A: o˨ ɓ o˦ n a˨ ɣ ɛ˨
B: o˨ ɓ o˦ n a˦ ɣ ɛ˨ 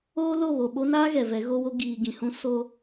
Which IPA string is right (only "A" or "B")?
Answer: B